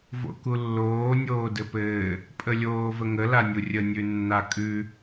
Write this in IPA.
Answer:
v o̰ k u lː oː nʲ oː d ɘ p ɘː | pʼ ə lʲ oː v ə ŋ ə l a nʲ u rʲ ə nʲ ʉ nː a kʼ ʉ

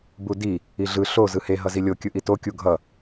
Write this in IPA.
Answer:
b u d i | i ɮ ɯ ɬ o z ɯ h e ɦ ʌ z i lʲ o kʲ ɯ ʔ i t o kʲ u ɡʱ ʌ

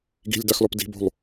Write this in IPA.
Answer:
ɡ i̤ lʲ d a x l ɔ p d i̤ b o̤ lˠ

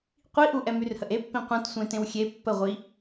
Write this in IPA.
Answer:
qʷ i ʔ u ʔ ɛ m y r h ə ʔ e pː ĩ qʷ œ̃ t sʷ ẽ t ẽ w xʲ e pː ə ʁʷ i

